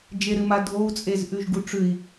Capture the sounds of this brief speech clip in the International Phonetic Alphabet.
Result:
d͡ʒeɾɨma dʱou̯t͡sʼez ʔʉʒɡuʈ͡ʂʉi̯

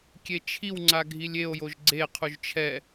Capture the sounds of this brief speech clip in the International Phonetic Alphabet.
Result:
kʲet͡ʃʰiwŋ͡ǀa ɡʱilʲeo̯joʒ ɡ͡ǀeqʰuʒ t͡ʃʰɛ

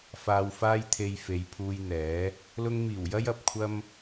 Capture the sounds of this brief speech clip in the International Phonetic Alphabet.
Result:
faː˨wfaː˧jt̪ʰe˨j fe˨˧jpʰuː˧jn̪ɛː˨˥ | lʊ˧ŋmiː˨˩wjɐ˥j ɐ˧p̚kʷʰɐ˥m

